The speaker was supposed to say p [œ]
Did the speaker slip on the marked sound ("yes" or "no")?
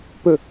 yes